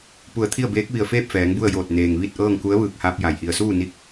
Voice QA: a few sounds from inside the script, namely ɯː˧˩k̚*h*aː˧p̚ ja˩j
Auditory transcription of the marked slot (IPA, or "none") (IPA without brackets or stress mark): h